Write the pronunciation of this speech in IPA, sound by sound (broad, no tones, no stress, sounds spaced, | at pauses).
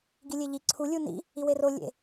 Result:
ɡ i lʲ e ʎ i ǀʰ u lʲ u n ḭ | i w e r o lʲ ḛ